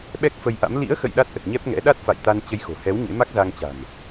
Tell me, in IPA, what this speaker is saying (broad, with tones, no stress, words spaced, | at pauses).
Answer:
ɓɛ˦˥k̚fə˧jʔa̰˧˥m lḭ˧˥ə̯xə̰˧˨j ɗa˦˥t̚ʔə˨˩t̚ɲɛ˦˥p̚ŋɛ̰˧˥ ɗa˦˥t̚fa̰˧˨jt̪a˧n t͡ɕə˧jxo̤˨˩hɛ˨˦w ɲḛ˧˥ma˦˥k̚za˧ŋt͡ɕa̤˨˩n